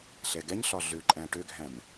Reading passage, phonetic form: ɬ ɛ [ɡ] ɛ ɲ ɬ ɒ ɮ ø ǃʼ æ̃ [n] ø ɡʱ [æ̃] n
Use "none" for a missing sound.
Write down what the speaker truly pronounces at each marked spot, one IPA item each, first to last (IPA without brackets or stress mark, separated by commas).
ɡ, ʈ, æ̃